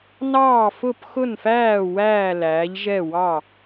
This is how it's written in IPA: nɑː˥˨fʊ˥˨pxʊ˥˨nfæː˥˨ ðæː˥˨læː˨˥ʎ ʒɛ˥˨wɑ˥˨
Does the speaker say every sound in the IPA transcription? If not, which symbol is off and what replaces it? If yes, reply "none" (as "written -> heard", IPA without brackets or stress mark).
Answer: ð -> w